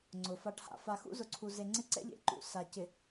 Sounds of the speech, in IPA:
ŋ͡ǀʊ˨fa˦ʈha̰˦ fa˨xṵ˦zʊ˨ǀʰu˨ ze˨ŋ͡ǀɪ˦ǀɛ̰˦ʎḛ˨ ǃṵ˨ sa˨cɪ˨

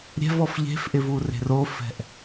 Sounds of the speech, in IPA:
ɾʲɛ̤vɔf ʎe̤fʔɪ vure̤rofɛ̤ʔ

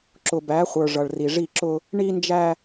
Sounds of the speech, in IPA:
ǁʊ˨bæ˨˦χʷə˞˨ ʐʌ˨ɭri˨ʐi˦˨ǁʊ˦ | ɳi˦ nd͡ʒæ˦

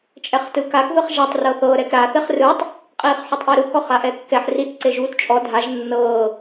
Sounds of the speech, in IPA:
t͡ʃʼɛχtɯkak ðɯχʒatˤ rɤθɤ ɾɛkɾa θeχrɯtˤ | qʼiːχħotˤʔeɾu kɔχaʔɛkːɛħ rit ǀeʒuːtt͡ʃʼɔ dʱaʒ nːɤː

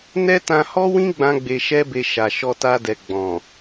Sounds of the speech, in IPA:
nɛ˦tã˧hɔ˦wĩ˦ ɡ͡bã˦ɡ͡be˧ʃɛ˦be˧ ʃa˨ ʃɔ˧ta˧dɛ˨ ɡ͡bɔ̃˨

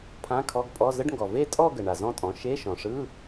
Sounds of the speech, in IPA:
pʰã˧˥˧kʰɔ˧˥˧ɡpʼɔ˧˥˧ zə˧˥˧ɖŋɡɔ˩ ve˥˧tʼɔ˥˧ ɡə˩ ɳa˩zɔ̃˥˧tʼɔ̃˩˥ ʃe˧˥˧ʃɔ̃˩ʂɯ˧˥˧

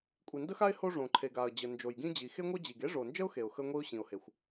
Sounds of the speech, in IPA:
kʷʼi˩ndə˥xa˥ɪ̯ ho˥ʐõ˩ ǃʰe˩ɡa˩ə̯ d͡ʑə˩ nd͡ʒo˩jɡĩ˥d͡ʑi˩ xe˥ŋʷœ˥d͡ʑi˩ɡ e˥ʐo˩nd͡ʒə˥ʊ̯ xe˩ʊ̯xə˥ ŋʷi˥ʊ̯ɕĩ˩ʊ̯he˩xʷ

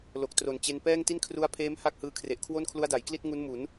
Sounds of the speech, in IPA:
lo˨˩k̚tro˨˩nt͡ɕe˧n pɛː˥˩ŋ ti˥˩nkʰru˦˥a̯pʰeː˦˥m ha˥˩k̚hɯː˧kʰre˨˩ʔkʰwo˥˩n kʰlu˦˥a̯da˩˦jkli˥˩t̚ ŋu˦˥nmu˩˦n

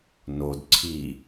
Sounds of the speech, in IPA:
nod ǀʰi

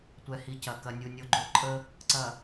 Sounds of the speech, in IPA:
tʷɛ˨hi˨ cɐ˨ kɐ˨nʲu˨ nʲo˨ɡ͡ǃo˨ ǃʼə˦ | ǀɐ˨

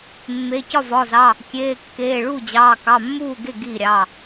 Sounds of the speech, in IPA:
mːe˩˧˩ cɒ˥˩vɒ˩˧˩zɑ˩˧˩ | kʲeː˩˧˩kːeː˩˧˩ɭu˥˩ d͡ʑɑː˩˧˩kɑ˩˧˩mːuː˥˩ɡe˥˩ ɡi˥˩ɾʲɑ˩˧˩

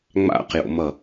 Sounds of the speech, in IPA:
ŋ͡ma̰qjo̰mʌ

